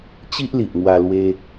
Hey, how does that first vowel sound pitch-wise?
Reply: high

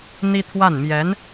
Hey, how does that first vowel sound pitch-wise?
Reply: high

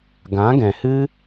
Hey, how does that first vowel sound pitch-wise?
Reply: rising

